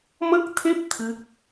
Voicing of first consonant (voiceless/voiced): voiced